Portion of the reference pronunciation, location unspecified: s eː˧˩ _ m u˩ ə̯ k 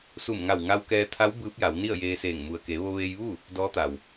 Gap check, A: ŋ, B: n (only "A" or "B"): A